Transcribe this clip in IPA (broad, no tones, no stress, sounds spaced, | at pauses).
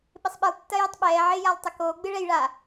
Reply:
ɓ ɪ sˤ ɓ ɨ lˠ tː ɐ j ɨ tˤ ɓ ɛː ʕ ɪː j a lˠ tˤ ɪ k oː ɡ͡b ɨ ɭ ɛ j ɭ a